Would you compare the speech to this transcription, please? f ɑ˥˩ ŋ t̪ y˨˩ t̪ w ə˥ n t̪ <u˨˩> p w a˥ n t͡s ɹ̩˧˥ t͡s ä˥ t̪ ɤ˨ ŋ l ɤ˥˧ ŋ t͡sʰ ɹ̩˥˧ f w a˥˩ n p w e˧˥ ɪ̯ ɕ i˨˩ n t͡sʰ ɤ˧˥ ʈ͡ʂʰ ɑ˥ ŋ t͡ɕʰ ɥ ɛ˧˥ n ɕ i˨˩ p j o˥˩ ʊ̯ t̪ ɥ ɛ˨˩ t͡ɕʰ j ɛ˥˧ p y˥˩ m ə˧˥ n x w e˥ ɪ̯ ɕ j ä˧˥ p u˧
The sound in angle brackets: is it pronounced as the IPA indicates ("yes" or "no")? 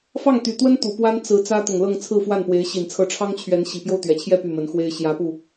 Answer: yes